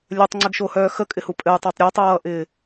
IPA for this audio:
lʲ œ tˤ ŋ͡ǀ ɪ ɡ ʃ o h œː x ə kʼ ɪ h u pʼ ɘ j tˤ o tˤ ɾʲ ɛ tˤ ʌː ʔ ɪː

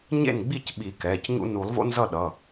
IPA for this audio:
ɲ ḛ˥˩ n ɡ͡b i˥˩ c ɓ i˨˩˦ k ɛː˩˧˩ c ɲ ṵ˦ n u˨˩˦ lˠ v o̰˦ n z ʌ˥˩ ɗ ʌ˩˧˩

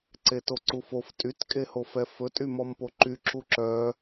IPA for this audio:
ǀ e t o ǀ u f o f tʼ y t kʼ e h o f ɛ f ɵ tʼ y m ɔ m p o ǃ y ǁ u ǁ œ

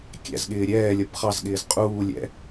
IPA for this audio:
kʲ æ̰ z ɠ ɪː ɾʲ ɛː lʲ ʌ b χ ɑ z ɠ ɪː z qʼ uː lʲ ɛ̰

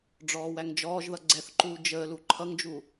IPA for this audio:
ɖ͡ʐ ɔː w æ ŋ d͡ʒ ɔː ʒ ð ʌ ɡ͡ǀ ɛ θ ǃ uː d͡ʒ əː l u ǃʰ ʌ ŋ d͡ʒ u

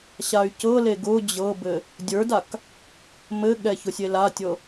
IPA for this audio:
ɕ a y̯ c ɤ l e ɡ ʊ d͡ʑ ɤ b ɘ | dʲ ə˞ d a k | m ɘ ɠ ɛ ç ʊ sʲ e l a tʲ ɤ

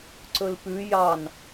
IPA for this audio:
ǀ ɵ l p ʉ j ɑ n

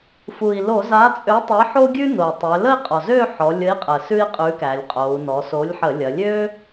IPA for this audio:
f u˩ i̯ l o˧˩˧ z a˨˥ t͡sʼ ø˨˥ tˤ ə˨˥ i̯ ħ o˥ ɡʲ ʉ˥ n o˩ y̯ tˤ ø˩˧ l ə˥˧ i̯ qʼ ɔ˩ z ø˥˧ ħ ɔ˩˧ lʲ ə˨˥ i̯ qʼ ə˩ s ʉ˥ i̯ qʼ ʉ˨˥ k æ˩˧ lʲ qʼ o˩˧ u̯ n ɔ˩˧ s o˨˥ lʲ ħ ə˧˩˧ lʲ ɐ˩˧ lʲ ø˥

